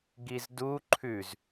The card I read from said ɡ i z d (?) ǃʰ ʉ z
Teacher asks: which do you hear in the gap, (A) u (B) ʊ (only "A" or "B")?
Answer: A